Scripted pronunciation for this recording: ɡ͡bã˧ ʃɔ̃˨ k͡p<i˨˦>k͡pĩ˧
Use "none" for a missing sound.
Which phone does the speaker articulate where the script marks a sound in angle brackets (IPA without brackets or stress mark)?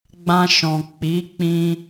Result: i˨˦